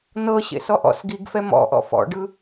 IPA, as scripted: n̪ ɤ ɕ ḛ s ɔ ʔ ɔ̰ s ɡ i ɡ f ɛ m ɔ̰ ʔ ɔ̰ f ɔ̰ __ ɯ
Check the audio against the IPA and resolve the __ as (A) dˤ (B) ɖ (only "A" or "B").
B